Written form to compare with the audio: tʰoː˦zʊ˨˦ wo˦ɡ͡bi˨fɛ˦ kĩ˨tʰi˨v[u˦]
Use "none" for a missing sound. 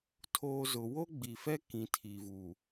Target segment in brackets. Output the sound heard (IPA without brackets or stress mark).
u˨